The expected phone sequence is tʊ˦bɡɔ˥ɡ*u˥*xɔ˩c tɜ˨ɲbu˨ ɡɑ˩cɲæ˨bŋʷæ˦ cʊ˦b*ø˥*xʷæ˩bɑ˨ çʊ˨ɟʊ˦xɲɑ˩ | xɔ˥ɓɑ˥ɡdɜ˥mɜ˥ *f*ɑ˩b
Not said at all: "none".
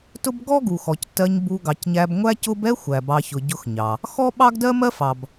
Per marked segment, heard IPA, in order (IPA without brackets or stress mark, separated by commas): u˩, ɛ˥, f